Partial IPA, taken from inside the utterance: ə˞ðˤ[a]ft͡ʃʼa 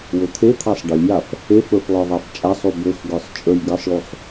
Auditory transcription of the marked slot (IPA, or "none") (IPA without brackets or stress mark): a